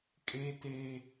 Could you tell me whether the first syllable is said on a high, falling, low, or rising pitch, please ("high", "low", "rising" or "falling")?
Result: high